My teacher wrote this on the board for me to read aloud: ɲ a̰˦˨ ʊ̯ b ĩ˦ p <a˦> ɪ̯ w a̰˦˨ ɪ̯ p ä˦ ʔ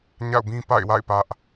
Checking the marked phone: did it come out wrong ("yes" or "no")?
yes